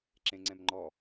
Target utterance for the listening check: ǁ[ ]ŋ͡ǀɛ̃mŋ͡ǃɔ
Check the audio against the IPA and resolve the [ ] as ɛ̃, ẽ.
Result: ẽ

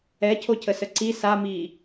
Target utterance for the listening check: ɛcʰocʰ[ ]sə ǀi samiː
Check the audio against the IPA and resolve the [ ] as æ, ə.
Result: ə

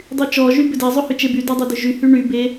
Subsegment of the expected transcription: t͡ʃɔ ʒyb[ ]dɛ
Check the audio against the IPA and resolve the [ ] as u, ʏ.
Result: ʏ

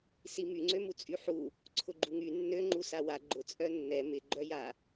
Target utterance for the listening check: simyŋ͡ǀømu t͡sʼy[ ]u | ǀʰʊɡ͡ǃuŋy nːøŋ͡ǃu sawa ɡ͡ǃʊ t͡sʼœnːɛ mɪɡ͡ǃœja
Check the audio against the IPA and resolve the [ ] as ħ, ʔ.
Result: ħ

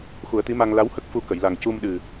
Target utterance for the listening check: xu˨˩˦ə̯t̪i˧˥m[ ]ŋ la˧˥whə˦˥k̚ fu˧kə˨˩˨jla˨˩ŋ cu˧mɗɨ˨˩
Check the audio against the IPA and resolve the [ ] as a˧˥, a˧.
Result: a˧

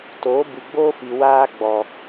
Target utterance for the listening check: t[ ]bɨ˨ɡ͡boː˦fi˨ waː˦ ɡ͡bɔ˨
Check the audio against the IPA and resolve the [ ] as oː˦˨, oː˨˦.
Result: oː˨˦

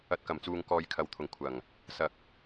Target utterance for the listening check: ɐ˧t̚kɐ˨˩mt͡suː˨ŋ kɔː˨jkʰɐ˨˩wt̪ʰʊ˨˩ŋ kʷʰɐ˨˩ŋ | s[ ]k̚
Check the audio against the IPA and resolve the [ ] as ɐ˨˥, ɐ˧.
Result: ɐ˧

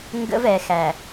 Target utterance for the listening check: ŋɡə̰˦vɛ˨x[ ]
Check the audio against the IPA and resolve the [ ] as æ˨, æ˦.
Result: æ˨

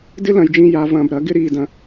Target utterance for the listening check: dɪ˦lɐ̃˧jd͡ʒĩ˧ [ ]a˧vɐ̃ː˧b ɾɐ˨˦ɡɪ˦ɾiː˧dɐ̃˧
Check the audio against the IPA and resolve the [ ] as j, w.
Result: j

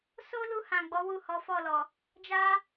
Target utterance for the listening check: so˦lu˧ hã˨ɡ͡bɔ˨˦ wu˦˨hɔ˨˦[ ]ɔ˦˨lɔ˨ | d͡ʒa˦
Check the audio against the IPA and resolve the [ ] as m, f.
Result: f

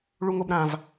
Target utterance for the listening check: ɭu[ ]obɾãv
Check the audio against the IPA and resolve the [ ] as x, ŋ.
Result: ŋ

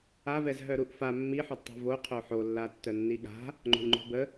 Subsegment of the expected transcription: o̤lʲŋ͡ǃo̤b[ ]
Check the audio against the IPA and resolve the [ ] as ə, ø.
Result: ə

